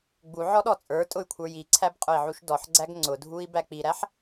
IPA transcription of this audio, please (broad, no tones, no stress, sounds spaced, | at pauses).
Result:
ɡ͡b u ʕ ɔ ɗ ɔ t͡sʼ ə˞ tʼ ʊ y̯ kʷʰ ə˞ j i ǀʰ æ b qʼ ʊ i̯ ʕ u ʃ d ɔ ħ ɡ͡ǀ æ ɡ ŋ͡ǀ ʊ dʱ u i̯ b æ k͡p i ɾ æ ħ